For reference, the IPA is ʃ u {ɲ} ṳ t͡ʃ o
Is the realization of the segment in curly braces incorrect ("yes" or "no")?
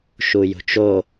yes